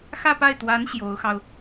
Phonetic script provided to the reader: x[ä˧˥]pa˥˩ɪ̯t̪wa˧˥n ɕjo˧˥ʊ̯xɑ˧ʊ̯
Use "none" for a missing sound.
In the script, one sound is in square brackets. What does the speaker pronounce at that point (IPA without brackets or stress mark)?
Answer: ä˥˧